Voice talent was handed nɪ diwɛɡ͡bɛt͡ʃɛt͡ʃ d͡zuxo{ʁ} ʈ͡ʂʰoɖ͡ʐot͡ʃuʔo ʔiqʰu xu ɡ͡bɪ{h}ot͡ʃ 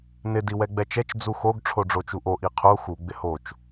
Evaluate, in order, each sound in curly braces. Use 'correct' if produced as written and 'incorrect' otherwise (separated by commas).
incorrect, correct